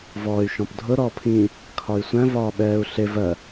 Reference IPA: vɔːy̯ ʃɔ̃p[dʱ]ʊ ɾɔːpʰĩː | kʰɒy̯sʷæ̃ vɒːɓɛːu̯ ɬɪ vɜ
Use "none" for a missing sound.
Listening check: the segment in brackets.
dʱ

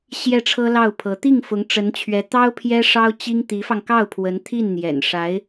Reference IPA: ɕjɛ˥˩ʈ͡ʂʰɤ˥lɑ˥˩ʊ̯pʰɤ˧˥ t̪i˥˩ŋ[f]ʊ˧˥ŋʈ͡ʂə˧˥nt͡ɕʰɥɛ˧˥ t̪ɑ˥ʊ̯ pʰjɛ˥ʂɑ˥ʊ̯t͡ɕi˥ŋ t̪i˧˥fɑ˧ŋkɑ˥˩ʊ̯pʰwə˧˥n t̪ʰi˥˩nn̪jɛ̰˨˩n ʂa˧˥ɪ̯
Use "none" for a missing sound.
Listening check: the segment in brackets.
f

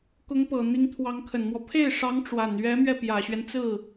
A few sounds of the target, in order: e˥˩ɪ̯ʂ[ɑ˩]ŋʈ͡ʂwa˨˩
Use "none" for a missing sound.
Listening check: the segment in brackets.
ɑ˧˥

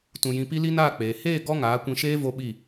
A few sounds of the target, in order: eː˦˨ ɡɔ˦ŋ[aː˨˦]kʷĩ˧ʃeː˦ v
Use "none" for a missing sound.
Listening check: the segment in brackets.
aː˨˦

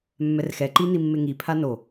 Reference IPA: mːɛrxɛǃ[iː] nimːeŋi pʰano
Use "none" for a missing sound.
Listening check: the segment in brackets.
i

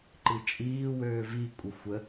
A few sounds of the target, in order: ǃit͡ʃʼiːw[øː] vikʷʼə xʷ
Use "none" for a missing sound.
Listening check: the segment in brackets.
øː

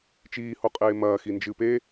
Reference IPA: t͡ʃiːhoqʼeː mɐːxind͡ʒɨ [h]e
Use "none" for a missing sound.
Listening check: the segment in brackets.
p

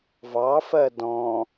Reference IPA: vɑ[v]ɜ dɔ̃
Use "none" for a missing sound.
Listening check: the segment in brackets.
f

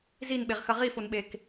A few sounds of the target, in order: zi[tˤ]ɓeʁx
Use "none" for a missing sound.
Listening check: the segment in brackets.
n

